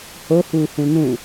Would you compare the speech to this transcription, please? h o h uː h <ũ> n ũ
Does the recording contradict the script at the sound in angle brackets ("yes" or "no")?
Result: no